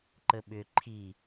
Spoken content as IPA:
ǃ ə ɓ ʏ ǃʰ i

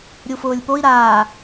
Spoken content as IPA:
ɾʲ u f ʊː lʲ p o i̯ ɾ aː

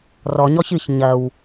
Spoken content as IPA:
r ɔ ɲ ɔ ç ɨ ç ɲ ɐ w

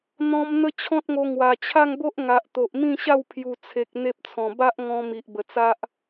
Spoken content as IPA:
n̪ ɔ̃˦ m n̪ ə˦ t͡ɕʰ ɔ̃˦ t̚ ŋ o˧ ŋ w a˨˩ t͡ɕʰ a˥˧ ŋ b o˦ ʔ ŋ a˨ ʔ t̪ o˨ ʔ m ĩ˥˧ ɕ a˥˧ w pʰ j u˨˩ t͡sʰ e˨ k̚ n̪ e˦ p̚ t͡sʰ ɔ̃˨˩ b a˦ ʔ ŋ ɔ̃˧ m i˨ ʔ b ə˨˩ t͡s a˦ ʔ

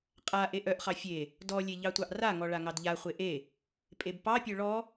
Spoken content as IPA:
qʼ a ʔ e ʔ œ ʔ χ ɑ fʲ e | d ɔ lʲ e ʎ ɑ tʷ ɑ ʔ r a ŋ ɔ ɭ a ŋ ɑ d ʎ a χʷ e ʔ e | pʼ e b p ɑ pʲ œ ɭ ɔ

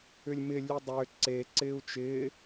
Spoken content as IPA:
ʏ lʲ m ɪ lʲ ʉ dˤ ʏː ǀ e ǀ ɪː u̯ t͡ʃ ɪː

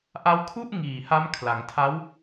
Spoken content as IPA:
ʔ a˦˥ w kʰ u˥˩ ʔ ŋ iː˨˩ h a˦˥ m kʰ l a˩˦ ŋ tʰ a˦˥ w

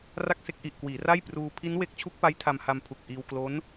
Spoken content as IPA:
r a˥˩ k̚ s e˥˩ k̚ ʔ i˨˩ ʔ k w iː˩˦ r a˥˩ j p r uː˧ pʰ i˦˥ n w e˦˥ k̚ t͡ɕʰ u˦˥ k̚ p a˦˥ j tʰ a˧ m h a˧ m pʰ u˨˩ k̚ ʔ iː˧ w k l o˦˥ n

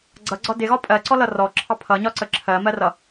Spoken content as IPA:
ɡ͡ǀ ʌ ɡ͡ǀ ɒ d ɪ ɣ ɒ pʼ ɜ ǀ ɔ l ʌ r ɔ ǁʰ ɑ pʰ ʌ ɲ ɒ ǀ ə ǁʰ ɜ m ɜ r ʌ

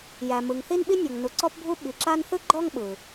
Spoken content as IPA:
j æ˩ m ɯ˩ ŋ θ i˥ n ɓ i˥ nʲ ɔ˩ ŋ n u˩ ǀ ɔ˥ p bʱ u˥ ɓ i˩ ǁ a˥ n θ ɯ˥ ɡ͡ǃ ɔ˥ ŋ ɓ ɯ˩

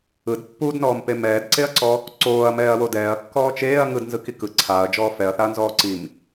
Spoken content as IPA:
ɯ d pː u d n ɔː m p e m ɛː d ǀ e ɐ̯ ǀ ɔ | ǀ oː ɐ̯ m ɛː ɐ̯ w o d ɛː ɐ̯ kː ɔː t͡ʃ eː ɐ̯ ŋ ɯ d n z ɯ k i k ɯ ǀʰ aː ɐ̯ d͡ʒ ɔː f ɛ ɐ̯ θ a ɐ̯ n z ɔː ǀ i m

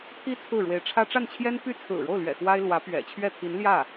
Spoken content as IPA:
t̪ʰ i˥ t͡sʰ ɹ̩˥˩ ɻ w e˧˥ ɪ̯ ʈ͡ʂʰ ä˥ ʈ͡ʂ a˥˩ n t͡ɕʰ j ɛ˥ n p y˥˩ t͡sʰ ɹ̩˨˩ ɻ o˥˩ ʊ̯ l ɥ ɛ̰˨˩ x w a˥ ɪ̯ l w ä˧˥ p ɥ ɛ̰˨˩ t͡ɕʰ ɥ ɛ˥˩ t̪ʰ i˧˥ n l j ä˥˩

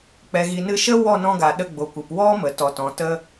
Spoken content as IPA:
k͡p ɛ˨ ɣ i˨ n ɨ˧ ʃ ə˦ w ɔ˦˨ n ɔ̃˧ ɡ a˨ ɗ ə˧ ɡ͡b o˨ kʷ ɨ˨ p w ɔ˦ m ə˨ t ɔ˨ t ɔ̃˨ t ə˧

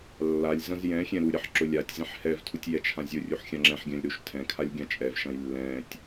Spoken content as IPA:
lː a lʲ z ɐ̃ z j ɛ̃ xʲ ɛ̃ ɾ u ɾʲ ɐ ħ ǁ ʊ lʲ a tʲ z ɛ̃ ħ h ɛ v tʰ u tʲ j ɛ t͡ʃʰ ã zʲ ʊ rʲ u ħ xʲ ã ŋ͡ǁ ɛ̃ ħ ɡʲ ã lʲ ɾ u ʃ tʰ ɛ̃ kʰ a lʲ ɡʲ ã t͡ʃʼ ɛ v ʃ ɐ̃ j lː ɛ̃ tʲ

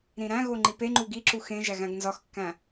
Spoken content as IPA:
ɾ ĩ ɾ æ̃ ɣ o ŋ͡ǃ i p e ŋ͡ǃ u ɡ i ǁ u x ẽ ʒ æ ɣ æ̃ ɡ n z ɒ x kː æ̃

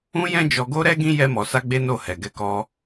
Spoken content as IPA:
ũ˦ j ɛ̃˦ d͡ʒ ɔ˧ ɡ o˦ ɾ ɛ˦ ɡ ĩ˦ j ɛ˧ m ɔ˨ s a˧ ɡ͡b e˦ n o˦˨ h ɛ˨ ɡ ɛ˨˦ k ɔ˧

